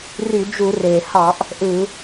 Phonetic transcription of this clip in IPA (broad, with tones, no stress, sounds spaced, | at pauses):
r y˧˩˧ d͡ʒ u˧˩˧ r eː˩ h ɑ˧˩˧ ʔ | ʔ ɯ˧˩˧